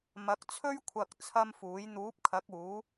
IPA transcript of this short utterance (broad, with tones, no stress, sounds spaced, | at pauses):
m ɐ˨˥ k̚ t͡sʰ ɵ˥ ɥ kʷʰ ɐ˧ k̚ t͡sʰ ɐ˥ m f uː˨˥ j n̪ uː˨˥ p̚ kʰ ɐ˨˥ k̚ uː˨˥